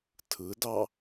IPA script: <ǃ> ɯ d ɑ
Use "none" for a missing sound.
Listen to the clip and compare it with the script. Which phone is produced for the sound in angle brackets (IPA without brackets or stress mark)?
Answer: tʰ